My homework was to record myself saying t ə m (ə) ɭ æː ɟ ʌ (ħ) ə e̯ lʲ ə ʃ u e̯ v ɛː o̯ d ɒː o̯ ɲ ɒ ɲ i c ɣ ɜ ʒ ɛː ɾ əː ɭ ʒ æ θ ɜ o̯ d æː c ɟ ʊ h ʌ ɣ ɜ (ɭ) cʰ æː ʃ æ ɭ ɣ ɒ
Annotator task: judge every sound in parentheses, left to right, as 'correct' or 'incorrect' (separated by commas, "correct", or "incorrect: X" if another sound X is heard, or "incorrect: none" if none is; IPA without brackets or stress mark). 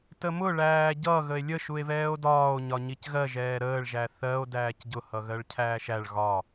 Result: incorrect: ʊ, incorrect: ɣ, correct